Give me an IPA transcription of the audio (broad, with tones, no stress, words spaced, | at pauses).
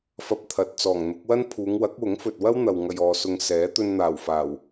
fɐ˧p̚t̪ʰɐ˨t̚ t͡sɔː˨˩ŋn̪ʊ˨˥k̚wɐ˥n pʰuː˨˧ŋwɐ˨˥k̚wʊ˨˥ŋ fɵ˨t̚wɐ˥w n̪ɐ˨wŋɐ˨jɔː˨sʊ˨ŋ sɛː˨˥ t̪ɵ˧nn̪aː˨˩wfaː˨˩w